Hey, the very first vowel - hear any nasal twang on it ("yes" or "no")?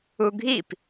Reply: no